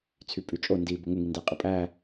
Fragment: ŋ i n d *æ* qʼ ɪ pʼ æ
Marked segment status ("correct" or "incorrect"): correct